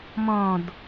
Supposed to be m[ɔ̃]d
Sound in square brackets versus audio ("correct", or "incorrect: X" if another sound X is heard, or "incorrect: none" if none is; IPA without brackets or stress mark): correct